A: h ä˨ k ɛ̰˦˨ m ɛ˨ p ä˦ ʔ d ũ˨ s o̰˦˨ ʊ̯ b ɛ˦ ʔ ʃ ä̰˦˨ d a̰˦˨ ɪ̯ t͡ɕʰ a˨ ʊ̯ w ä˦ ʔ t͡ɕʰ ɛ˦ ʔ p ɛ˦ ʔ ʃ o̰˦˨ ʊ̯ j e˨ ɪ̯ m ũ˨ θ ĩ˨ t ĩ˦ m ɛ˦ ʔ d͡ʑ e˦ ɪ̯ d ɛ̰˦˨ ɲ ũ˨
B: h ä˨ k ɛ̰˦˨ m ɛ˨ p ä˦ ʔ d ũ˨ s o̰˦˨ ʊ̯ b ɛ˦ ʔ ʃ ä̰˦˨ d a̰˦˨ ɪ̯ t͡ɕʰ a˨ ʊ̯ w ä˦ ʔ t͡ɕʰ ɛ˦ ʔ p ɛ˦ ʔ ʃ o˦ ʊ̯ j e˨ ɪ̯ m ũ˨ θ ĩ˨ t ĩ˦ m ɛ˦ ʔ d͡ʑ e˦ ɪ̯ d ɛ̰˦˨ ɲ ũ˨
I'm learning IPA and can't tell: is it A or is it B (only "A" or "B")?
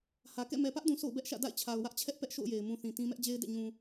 A